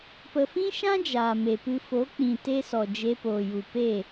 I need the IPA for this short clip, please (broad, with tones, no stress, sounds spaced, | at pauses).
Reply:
p ə˨ f ĩ˦ ʃ ã˦ d͡ʒ aː˨ m e˨ p ɨ˧ f o˨˦ k͡p ĩ˨ t e˦ s ɔ˨ d͡ʒ e˧ p oː˨ j u˨ p e˦˨